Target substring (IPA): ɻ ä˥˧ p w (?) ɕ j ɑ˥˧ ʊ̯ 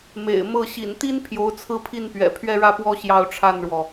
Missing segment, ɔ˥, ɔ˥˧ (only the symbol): ɔ˥˧